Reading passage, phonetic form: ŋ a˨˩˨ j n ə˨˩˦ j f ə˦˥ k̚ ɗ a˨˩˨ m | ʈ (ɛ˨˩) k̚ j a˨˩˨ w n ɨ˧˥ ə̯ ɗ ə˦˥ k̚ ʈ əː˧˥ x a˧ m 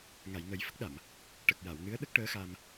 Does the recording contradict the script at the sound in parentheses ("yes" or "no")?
yes